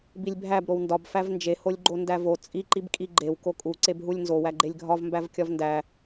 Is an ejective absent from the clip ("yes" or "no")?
no